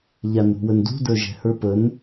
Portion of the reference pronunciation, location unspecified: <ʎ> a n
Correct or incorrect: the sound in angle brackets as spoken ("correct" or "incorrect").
correct